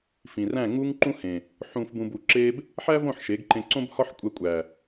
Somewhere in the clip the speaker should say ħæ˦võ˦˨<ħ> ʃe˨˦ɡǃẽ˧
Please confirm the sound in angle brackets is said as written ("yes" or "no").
yes